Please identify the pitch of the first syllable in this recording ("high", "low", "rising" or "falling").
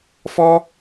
high